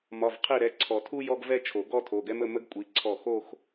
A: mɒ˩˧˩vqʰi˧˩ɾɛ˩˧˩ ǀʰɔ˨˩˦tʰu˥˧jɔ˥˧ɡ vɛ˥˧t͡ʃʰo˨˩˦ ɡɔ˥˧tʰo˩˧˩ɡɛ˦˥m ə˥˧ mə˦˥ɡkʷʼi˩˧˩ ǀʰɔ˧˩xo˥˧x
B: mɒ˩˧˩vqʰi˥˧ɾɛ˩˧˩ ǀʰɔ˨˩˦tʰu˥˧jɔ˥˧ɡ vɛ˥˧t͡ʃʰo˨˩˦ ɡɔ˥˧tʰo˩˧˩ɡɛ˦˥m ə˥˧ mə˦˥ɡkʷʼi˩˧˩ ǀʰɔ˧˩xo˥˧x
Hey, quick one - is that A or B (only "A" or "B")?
A